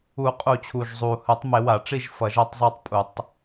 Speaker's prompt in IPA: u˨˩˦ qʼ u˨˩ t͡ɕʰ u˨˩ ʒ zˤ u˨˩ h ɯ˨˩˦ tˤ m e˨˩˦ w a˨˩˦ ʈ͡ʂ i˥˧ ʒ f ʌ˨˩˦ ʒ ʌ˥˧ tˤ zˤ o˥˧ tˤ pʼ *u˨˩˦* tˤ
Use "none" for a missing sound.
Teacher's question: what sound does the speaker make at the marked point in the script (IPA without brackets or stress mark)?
u˨˩˦